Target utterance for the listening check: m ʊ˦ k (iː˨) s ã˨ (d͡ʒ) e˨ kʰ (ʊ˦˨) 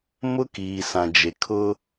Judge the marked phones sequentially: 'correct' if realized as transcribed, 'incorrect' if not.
correct, correct, incorrect

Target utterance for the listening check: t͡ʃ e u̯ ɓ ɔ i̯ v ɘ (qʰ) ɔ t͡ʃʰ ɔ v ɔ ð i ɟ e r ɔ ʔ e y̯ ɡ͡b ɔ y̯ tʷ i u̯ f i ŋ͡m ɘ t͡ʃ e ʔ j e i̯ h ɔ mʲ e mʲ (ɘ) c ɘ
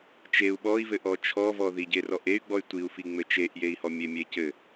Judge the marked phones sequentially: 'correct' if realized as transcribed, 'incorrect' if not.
incorrect, incorrect

